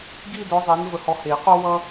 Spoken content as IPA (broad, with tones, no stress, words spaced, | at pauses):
ɡi˥˧dœ˨˦ zˤe˨˦nvə˨hɔ˨ he˨˩˦qo˥ wʌ˥